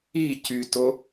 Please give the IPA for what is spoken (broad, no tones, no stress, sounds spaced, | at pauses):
i c y t o